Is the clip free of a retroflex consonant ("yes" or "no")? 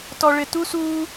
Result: no